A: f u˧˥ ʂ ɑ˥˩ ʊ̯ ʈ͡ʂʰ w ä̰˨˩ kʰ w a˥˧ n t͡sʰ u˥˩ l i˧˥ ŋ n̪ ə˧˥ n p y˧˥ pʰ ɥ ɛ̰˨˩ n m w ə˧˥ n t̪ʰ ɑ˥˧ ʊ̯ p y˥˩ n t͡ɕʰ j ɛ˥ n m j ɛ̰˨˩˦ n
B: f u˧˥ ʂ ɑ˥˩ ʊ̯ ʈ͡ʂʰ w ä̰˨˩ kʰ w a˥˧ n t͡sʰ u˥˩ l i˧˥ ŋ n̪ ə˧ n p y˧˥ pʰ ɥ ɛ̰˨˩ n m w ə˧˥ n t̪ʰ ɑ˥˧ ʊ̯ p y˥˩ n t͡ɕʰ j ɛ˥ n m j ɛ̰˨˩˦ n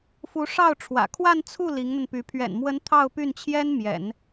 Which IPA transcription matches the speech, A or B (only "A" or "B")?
B